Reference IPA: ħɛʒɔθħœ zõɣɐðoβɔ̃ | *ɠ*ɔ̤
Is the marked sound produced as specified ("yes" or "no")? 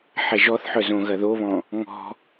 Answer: no